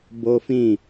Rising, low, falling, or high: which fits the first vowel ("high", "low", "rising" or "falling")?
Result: high